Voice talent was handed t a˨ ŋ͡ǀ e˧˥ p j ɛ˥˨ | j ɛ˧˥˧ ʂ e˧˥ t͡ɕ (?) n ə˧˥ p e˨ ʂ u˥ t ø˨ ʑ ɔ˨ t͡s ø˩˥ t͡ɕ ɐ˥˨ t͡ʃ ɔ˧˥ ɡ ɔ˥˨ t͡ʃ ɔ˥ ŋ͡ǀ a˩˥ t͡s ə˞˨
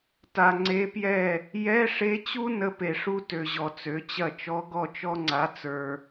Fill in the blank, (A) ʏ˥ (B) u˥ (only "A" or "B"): B